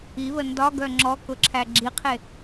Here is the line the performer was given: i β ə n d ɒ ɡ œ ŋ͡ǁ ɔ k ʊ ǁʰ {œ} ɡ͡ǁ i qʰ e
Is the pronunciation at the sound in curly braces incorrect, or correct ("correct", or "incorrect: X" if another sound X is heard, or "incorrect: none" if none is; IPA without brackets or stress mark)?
incorrect: æ